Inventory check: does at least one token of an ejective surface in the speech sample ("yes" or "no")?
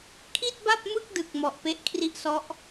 no